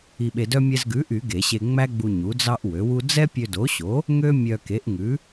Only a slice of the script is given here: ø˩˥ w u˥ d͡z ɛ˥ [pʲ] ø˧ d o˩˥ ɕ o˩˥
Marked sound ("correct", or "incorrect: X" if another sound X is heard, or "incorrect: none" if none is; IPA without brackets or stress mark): correct